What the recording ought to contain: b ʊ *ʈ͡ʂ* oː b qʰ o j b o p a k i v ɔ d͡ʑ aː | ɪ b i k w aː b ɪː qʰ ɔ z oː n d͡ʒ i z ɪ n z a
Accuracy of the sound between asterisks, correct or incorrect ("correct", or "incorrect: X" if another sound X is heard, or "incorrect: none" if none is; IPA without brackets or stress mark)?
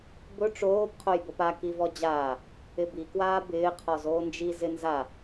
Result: correct